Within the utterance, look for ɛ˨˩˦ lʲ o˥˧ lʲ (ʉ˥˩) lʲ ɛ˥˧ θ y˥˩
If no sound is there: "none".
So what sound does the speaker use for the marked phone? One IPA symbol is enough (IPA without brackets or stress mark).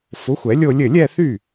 ɘ˥˩